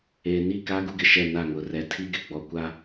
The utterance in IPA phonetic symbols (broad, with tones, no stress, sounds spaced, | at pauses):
eː˨ n i˦˨ k a˦ ɡ u˦ ɡ ɪ˨ ʃ ɛ˦˨ n a˦˨ ŋ ʊ˨ r ɛ˨ tʰ i˦ ɡ ɪ˨ ɡ͡b ɔ˨ kʷ a˦